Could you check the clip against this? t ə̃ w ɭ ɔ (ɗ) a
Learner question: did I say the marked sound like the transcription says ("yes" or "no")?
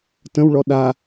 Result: yes